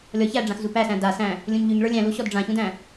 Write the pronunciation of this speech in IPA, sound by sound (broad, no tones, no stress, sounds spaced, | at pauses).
lʲ ɔ ç æ ɖ͡ʐ ã x z u p æ s æ̃ d a s æ̃ | lʲ ũ ɲ ʎ y ɲ ɭ ə˞ lʲ æ̃ l u ɕ ɔ d ɖ͡ʐ ã ç ũ d æ̃